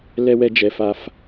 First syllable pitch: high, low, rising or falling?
low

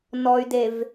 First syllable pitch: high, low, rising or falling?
low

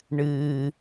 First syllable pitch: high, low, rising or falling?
low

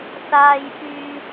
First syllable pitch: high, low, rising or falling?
low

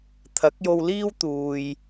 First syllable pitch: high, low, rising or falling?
rising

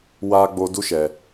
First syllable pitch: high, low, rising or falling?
high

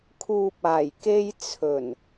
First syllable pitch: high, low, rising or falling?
low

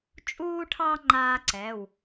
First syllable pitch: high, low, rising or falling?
high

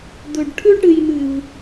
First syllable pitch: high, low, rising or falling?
low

